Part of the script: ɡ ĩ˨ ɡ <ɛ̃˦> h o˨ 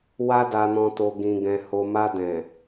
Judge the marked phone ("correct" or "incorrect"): incorrect